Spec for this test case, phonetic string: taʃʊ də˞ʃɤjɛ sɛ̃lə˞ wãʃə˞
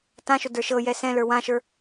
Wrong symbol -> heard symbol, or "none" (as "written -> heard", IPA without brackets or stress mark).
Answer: a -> ã